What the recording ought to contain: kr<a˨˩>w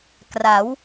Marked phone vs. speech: incorrect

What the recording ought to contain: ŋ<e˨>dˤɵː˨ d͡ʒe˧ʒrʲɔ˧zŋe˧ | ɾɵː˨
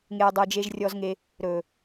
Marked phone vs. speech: incorrect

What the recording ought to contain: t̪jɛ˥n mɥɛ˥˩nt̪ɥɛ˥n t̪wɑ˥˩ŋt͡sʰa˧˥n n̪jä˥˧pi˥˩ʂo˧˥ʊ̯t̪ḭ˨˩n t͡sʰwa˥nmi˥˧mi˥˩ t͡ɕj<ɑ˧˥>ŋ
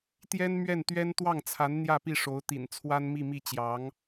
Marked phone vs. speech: correct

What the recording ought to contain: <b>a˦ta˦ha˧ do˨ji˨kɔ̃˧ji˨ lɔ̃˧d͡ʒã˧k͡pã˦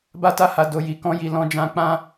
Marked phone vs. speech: correct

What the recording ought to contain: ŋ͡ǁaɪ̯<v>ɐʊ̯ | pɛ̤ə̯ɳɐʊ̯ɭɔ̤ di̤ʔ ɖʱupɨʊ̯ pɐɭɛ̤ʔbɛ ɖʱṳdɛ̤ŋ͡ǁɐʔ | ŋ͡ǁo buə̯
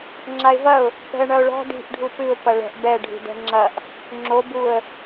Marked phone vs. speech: correct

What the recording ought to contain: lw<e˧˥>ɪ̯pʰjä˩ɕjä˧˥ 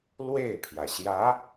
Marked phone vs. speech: incorrect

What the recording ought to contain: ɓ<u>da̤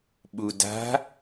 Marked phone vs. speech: correct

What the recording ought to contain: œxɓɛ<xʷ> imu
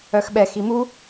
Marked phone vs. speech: incorrect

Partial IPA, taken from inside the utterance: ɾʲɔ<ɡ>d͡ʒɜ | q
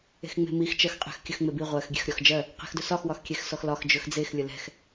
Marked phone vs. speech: incorrect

